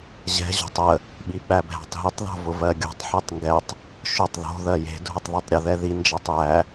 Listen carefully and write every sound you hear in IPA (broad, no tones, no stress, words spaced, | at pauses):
ʑɛ̤ ʑo̤tˤə | ɓiɓæbʱɛ̤tˤɦʊtˤ ðo̤vʊvɜɡʲo̤tˤ ħitˤŋɡɛtˤ | ʃʊtˤ ðo̤ ðɜje̤ dʱutˤðotˤɾʲʊ ðɛði nd͡ʒɑtˤjæ